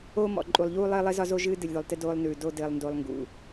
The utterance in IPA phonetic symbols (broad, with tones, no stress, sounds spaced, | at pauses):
oː˦ m ɔ̰˨ ǃʼ u˨ lˠ ʎ uː˦ lˠ ɘː˦ lˠ ɘ˦ z ɒ˦ z o˦ ʒ ɨː˦ d ɨ˨ lʲ ð o˨ lˠ t ɘ˦ d oː˦ lˠ n ʉː˨ d o˦ d ɘː˨ lˠ n d o˨ lˠ ŋ ɡ ṵ˨